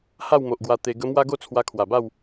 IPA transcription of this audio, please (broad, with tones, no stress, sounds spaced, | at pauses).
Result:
h a˥˧ w m o˨ ʔ ɡ w a˧ t̪ e˧ ɡ ə˧ m w a˦ ɡ o˥˧ t͡sʰ w a˧ kʰ w a˨˩ b a˥˧ w